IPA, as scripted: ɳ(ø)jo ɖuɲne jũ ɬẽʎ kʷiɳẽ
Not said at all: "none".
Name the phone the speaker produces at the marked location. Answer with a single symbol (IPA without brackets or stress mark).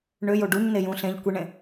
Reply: ø